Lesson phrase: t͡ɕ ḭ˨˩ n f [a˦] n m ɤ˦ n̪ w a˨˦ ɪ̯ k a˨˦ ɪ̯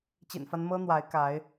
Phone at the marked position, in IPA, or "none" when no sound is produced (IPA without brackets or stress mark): a˦